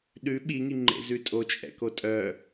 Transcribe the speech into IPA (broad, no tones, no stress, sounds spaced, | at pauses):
ɗ ʉ ɓ i ŋ i ŋ͡ǃ ḛ z ʉ tʼ o t͡ʃʼ ɛ̰ k o tʼ œ